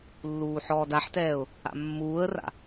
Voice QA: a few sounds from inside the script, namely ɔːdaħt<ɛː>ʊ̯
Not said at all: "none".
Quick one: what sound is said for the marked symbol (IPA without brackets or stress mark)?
ɛː